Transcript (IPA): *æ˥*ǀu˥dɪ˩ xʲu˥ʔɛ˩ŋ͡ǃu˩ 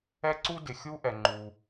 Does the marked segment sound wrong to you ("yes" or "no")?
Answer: yes